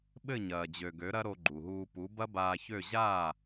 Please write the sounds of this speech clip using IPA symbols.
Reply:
ɓ ɘ˥˩ ɲ ɐː˩ d͡ʑ ø˩ ɡ ø˩˥ ɾ ɐ˥ ɾ o˧ ɡ͡ǃ u˩ ɦ uː˧ p u˩˥ b ɐ˥ b aː˧ ç ø˥˩ ʑ aː˥˩

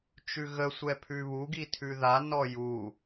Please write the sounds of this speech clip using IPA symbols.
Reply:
t͡ʃ ʉ ɣ ə sʷ ɛ pʰ ʉ β u ɡ i tʰ ʉ ð a n ɔ j u

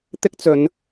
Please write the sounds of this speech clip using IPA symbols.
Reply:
t̪ ɪ˥ k̚ t͡s ɵ˨˧ n

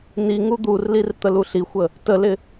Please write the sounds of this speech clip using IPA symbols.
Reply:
n i ŋ u d̪ u r l i r t̪ ə l u ɬ i xʷ ə | t ə l ɪ

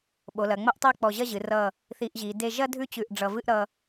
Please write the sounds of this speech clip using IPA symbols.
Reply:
ɓ o˩˧ l ɐ˩˧ ŋ͡m ɐ˥ ʔ tˤ e˥˧ k͡p ɔ˧˩ ʑ ɐ˥˧ ʑ ɨ˩˧ r ʌ˧˩ | θ i˧ ʔ ʑ i˩˧ d e˥˧ ʒ ɐ˥ dʱ ʉ˥˧ t͡ɕ ʉ˧˩ ʔ ɖ͡ʐ ʌ˧ v ɨ˥ ʔ ɾ ʌ˧

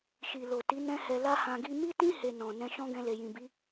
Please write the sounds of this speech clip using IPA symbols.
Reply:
ʃ i˨ l o˨ t i˨˦ n ɛ̃˦ h ɛ˧ l a˦ h ã˧ ɡ i˧ m i˦ t ĩ˦ h e˧ n ɔ̃˨ n ɛ̃˧ ʃ ɔ̃˦ ɡ ɛ̃˧ l e˨ j ĩ˨ b i˨˦

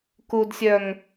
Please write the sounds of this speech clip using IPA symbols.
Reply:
k u d sʲ œ ŋ

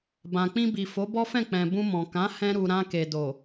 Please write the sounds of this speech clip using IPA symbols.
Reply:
b ã˨ k͡p ĩ˧ b i˨ f o˨˦ b ɔ˦ f ɛ̃˦˨ k͡p ɛ̃˨ b ũ˧ m ɔ̃˨ k ã˨˦ h ɛ̃˧ ɾ u˨ ɾ ã˧ k e˨ d o˨

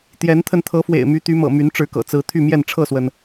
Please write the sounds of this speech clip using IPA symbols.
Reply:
t̪ j ɛ˨˦ n t̪ʰ ə˧ n t̪ʰ ɤ˨˦ f w ḛ˨˩ ɪ̯ m y˨˦ t̪ y˨˦ m ɤ̰˨˩ m y˨˦ n ʈ͡ʂ ɻ̩˨˦ k ɤ̰˨˩ t͡s ɹ̩˨˦ t̪ʰ y˥˨ m j ɛ˥˨ n ʈ͡ʂʰ ɤ˥˨ s w ə˩ n

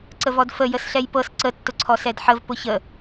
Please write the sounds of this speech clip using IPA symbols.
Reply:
ǀ ə v ɔ d f ə j ə s ɬ ɛ j p ɤ s ǀ ə tː ʊ ǀʰ ɔ s ɛ d ħ ə v p ʊ ç ə

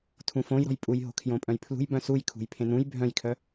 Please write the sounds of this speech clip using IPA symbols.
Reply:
tʰ ũ f õ j ɾ ɔ̤ j pʼ u j ɦ o̤ kʰ j õ pʼ œ̃ j pʰ l ṳ j b œ̃ s u j kʰ ṳ j pʰ ẽ n ũ j bʱ œ̃ j kʰ œ

